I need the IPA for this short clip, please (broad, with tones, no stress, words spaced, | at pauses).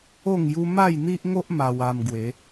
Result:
o˥˧ŋju˦ ma˥˧jn̪i˦ʔŋo˦ʔ ma˧wa˧m ɡwe˨˦